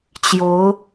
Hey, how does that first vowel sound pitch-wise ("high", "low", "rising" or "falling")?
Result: rising